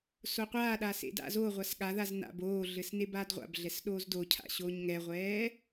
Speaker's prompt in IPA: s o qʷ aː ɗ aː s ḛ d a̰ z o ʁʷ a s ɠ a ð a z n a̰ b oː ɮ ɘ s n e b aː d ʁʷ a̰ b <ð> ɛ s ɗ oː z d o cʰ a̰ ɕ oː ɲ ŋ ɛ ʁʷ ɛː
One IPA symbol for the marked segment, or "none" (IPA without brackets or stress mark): ɮ